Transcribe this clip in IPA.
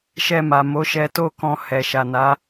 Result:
ʃ ɛ˧ m a˨ m o˨˦ ʃ ɛ˧ t o˦ k ɔ̃˧ h ɛ˨ ʃ a˨ n a˨˦

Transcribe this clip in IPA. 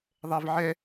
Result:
ðˤ ɛ v ʕ ɛ

